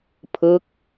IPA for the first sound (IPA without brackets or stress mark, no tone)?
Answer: pʰ